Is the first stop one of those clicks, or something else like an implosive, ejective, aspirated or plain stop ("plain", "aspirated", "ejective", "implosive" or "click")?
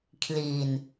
aspirated